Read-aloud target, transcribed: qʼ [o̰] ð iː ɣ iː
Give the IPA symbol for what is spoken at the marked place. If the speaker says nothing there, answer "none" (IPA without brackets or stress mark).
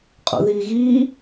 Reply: o̰